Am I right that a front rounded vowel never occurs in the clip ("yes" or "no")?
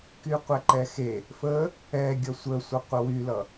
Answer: no